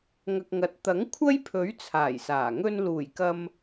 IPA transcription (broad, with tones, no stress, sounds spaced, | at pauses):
ŋ ɐ˨ k̚ ŋ ɐ˨˥ t̚ t̪ ɐ˨˥ ŋ kʷʰ ɐ˥ j pʰ ɵ˨˥ ɥ t͡sʰ aː˨˩ j s aː˨˩ ŋ ɵ˧ n l uː˨˩ j k ɐ˧ m